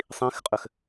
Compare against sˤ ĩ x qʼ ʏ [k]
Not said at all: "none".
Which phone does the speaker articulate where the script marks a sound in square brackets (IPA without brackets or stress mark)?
x